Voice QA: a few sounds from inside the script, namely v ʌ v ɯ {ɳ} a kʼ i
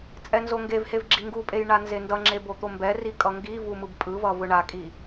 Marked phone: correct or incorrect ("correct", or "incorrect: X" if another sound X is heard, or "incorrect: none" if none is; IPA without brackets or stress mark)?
correct